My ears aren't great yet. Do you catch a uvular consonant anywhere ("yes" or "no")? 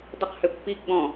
yes